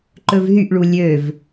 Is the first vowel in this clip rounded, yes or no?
yes